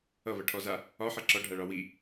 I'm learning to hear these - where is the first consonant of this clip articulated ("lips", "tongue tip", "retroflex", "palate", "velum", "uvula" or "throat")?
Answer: lips